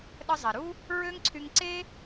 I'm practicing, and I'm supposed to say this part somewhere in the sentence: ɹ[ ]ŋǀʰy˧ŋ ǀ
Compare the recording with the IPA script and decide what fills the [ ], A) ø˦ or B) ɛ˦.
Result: A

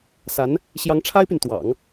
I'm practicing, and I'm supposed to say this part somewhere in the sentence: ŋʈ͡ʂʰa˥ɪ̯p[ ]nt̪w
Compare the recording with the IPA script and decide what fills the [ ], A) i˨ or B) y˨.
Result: B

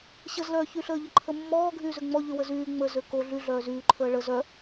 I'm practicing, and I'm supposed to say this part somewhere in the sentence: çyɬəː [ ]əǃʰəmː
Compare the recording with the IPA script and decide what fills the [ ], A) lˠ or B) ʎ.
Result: B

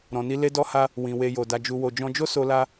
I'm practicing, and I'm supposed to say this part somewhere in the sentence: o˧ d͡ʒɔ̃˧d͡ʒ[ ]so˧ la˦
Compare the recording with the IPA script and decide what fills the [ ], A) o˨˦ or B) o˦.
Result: B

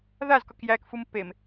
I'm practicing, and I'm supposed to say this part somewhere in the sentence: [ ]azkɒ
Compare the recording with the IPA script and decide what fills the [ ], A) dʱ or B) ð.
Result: B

